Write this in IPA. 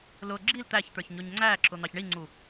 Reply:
lʊ ɡ͡ǁil t̪æçt̪ə˞ç ɲʊɲŋ͡ǀæǁʊ n̪ɑçɳiŋ͡ǀu

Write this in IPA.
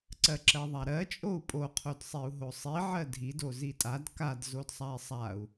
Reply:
ǀɜǁɜðˤaɾɜ t͡ʃʼou̯pʼo qʰodsˤiu̯ɦosˤi ʕɜdʱid ozitʼad kad zodsˤai̯sˤau̯

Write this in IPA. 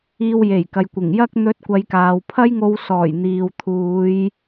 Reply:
iː˧wje˨˩jkɐ˨j kʷɪ˨˩ŋjɐ˥k̚ n̪ɵ˧t̚kʷɐ˨˧jkaː˨w pʰɐ˥jŋo˧wsɔː˨˩j n̪iː˨w t̪ʰuː˨˧j

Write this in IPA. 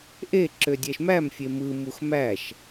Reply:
ʔeǁø dʲæʃmæmfʲe mɯmux mæʃ

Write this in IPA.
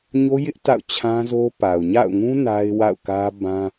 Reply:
ɲo˦jɪ˦ʔ ta̰˦˨ʊ̯t͡ɕʰã˦zo˦ pa˨ʊ̯ ɲa̰˦˨ʊ̯ŋũ˦ na˦ɪ̯wa̰˦˨ʊ̯kä˦ bã˦

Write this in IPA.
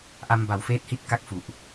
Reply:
ʔa˧mba˨˩wfeː˦˥t̚hi˦˥t̚ ka˥˩k̚fu˨˩ʔ

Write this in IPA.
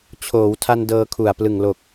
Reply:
t͡ɕʰoː˩˦wtʰa˧n dɤː˧kʰu˨˩a̯ plɯ˨˩ŋlo˨˩k̚

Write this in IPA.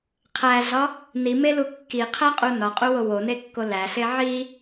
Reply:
qʰæɮɒ | nimelu kːiqʰæqʼu nɒqʼuwo wonekːo læɬe ʕi

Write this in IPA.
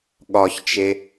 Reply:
ɠɒçt͡ʃe

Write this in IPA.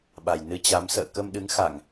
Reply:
ɓa˨˩j nɨ˧t͡ɕa˨˦m sə̰ː˧˨kə˧mɗɨ˨˦ŋ xa˧˩˨ŋ

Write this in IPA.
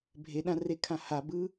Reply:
bʱeɗãrekʰã habɯ

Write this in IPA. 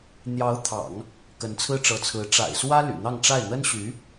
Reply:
n̪jɑ˧˥ʊ̯t̪ʰɑ̰˨˩˦ŋ | kə˧˥nt͡sʰɹ̩˥ʈ͡ʂɤ˧˥t͡sʰɹ̩˧˥ ʈ͡ʂa̰˨˩ɪ̯swä˥ ly̰˨˩n̪ɑ˥˧ŋʈ͡ʂa˥˩ɪ̯ n̪ə˥nɕy˧˥

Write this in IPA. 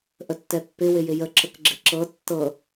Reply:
ʔətːɛpːɪ wɪjɪjə ǁəkɡ͡ǁɪǁɤ tːɤ

